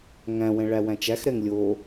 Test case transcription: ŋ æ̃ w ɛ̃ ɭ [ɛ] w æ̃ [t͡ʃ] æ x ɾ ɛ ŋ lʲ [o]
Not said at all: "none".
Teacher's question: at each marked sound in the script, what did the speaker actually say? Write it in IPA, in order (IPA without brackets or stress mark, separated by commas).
æ, t͡ʃ, o